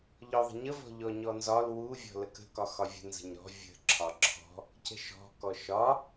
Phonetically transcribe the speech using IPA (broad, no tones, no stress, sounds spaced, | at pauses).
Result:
ʎ ɔ ðˤ ə̤ ɲ ə v ɔ̤ ʎ ɔ ɲ ɔ n z ɒ l w u vʲ ɔ̤ l ə k ə̤ k ɒ x ɒ vʲ ə̤ n z ə̤ ɲ ɾ ɔ̤ vʲ ə̤ ǁʰ ɒ ǁʰ ɔ̤ | c ə̤ ʃ ɔ̤ k ɔ ʃ ɒ